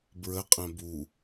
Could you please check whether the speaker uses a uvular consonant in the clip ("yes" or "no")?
yes